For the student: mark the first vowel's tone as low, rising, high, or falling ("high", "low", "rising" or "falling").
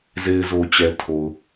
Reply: low